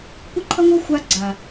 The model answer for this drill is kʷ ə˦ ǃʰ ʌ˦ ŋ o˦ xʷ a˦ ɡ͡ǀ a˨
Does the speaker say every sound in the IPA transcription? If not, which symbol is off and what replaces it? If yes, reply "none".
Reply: none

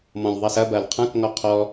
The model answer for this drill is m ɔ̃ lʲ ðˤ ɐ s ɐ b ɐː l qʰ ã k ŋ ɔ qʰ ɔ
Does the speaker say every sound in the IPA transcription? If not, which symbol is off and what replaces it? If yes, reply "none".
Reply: none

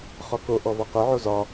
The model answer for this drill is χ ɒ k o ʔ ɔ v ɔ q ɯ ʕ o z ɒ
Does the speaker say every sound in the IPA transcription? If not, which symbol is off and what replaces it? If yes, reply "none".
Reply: none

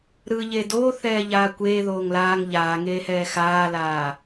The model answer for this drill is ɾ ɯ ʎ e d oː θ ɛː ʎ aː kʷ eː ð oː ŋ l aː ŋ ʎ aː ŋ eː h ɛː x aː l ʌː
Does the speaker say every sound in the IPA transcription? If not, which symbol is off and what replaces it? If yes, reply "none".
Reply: ʌː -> aː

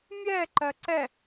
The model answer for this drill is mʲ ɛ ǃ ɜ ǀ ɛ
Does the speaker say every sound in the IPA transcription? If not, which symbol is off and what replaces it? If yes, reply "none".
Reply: none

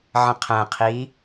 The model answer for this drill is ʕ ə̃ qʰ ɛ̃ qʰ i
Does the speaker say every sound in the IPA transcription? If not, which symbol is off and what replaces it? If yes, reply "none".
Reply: none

